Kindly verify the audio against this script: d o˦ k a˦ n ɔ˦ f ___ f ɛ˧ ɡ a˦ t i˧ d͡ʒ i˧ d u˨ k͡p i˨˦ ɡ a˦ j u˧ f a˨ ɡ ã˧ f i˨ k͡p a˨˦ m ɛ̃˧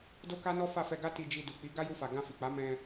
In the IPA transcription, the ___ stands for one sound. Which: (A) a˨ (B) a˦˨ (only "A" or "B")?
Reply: B